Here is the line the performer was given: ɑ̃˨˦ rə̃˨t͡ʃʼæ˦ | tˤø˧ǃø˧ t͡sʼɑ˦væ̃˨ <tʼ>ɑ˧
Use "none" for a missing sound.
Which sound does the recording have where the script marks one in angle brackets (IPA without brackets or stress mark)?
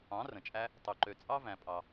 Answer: pʼ